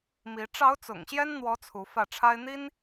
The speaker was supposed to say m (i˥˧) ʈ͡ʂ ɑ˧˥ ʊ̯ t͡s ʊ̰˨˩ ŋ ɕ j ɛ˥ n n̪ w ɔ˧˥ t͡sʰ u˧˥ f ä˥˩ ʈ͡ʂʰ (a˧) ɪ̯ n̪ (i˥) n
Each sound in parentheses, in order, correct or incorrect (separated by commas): incorrect, incorrect, correct